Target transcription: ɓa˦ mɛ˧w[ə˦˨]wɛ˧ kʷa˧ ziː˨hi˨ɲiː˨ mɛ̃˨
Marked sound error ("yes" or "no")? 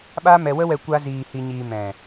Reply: yes